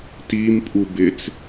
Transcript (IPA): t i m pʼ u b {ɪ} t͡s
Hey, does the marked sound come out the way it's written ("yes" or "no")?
yes